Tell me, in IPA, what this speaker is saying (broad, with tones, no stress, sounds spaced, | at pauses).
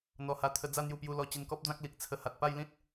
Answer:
n̪ ɔ˧ h a˧ t̪ʰ ə˧ d͡z a˥˧ n̪ j u˧ p j u˧ l ɔ˧ t͡ɕ i˧ n k ɔ˦ p̚ d͡z ã˦ k̚ l i˨ k̚ t͡sʰ ə˧ h a˨ t̚ p a˥˧ j l ĩ˦ t̚